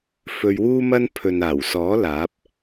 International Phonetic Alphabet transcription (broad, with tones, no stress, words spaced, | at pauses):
fɵ˧ɥwuː˥mɐ˥n pʰɵ˨n aː˨˩wsɔː˨˥ laː˨˥p̚